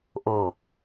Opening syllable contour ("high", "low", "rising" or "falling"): low